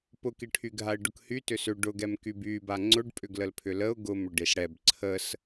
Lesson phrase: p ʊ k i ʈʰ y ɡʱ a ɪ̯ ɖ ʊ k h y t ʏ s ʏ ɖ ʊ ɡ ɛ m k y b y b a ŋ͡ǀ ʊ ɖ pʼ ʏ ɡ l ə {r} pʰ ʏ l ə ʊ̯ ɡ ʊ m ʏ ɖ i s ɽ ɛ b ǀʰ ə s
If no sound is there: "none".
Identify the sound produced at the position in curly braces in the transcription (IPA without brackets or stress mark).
l